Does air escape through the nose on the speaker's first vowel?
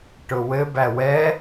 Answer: no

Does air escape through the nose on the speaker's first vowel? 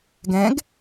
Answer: yes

